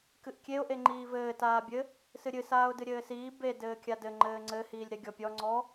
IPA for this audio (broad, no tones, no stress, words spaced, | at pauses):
kɨʔkʲeʊ̯ ʔeŋ͡ǃiːvɘː taːbʲɘ | sɨɾʲɨ saːʊ̯dɨɾʲɘːsiː be dɘːkʲadɘ ŋ͡ǃɘːŋ͡ǀɘ hiːlʲɾeɡʲɔpʲɔ ŋ͡ǀɔ